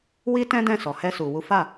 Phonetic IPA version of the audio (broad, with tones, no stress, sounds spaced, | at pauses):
w i˦ t ɛ̃˦ d ɛ̃˦˨ s ɔ˨ h ɛ˧ s u˨ w u˨˦ f a˦˨